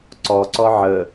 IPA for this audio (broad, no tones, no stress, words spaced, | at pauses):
ǀɔǀɔ ʕə